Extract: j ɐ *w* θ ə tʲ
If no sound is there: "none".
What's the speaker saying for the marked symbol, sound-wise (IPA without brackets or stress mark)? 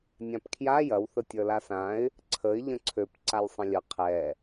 w